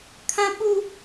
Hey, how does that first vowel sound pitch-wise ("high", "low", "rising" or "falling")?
high